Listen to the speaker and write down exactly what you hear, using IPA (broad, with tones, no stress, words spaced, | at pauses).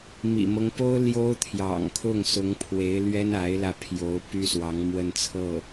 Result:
mḭ˨˩mɤ˦ŋpo˥ʊ̯ ljo˥ʊ̯t̪ʰjɑ̰˨˩ŋkʰʊ˥˩ŋ sʊ˧˥ŋpʰwe˧˥ɪ̯lɥɛ˥n a˧˥ɪ̯lä˧pʰjo˧˥ʊ̯ py˥swɑ˧˥ŋ mwə˥˧nt͡sʰɤ˥˩